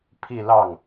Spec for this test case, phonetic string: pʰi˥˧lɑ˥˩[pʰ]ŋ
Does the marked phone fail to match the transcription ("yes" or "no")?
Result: yes